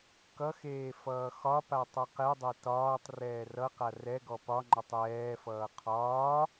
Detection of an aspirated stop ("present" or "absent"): present